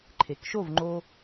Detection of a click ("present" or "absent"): present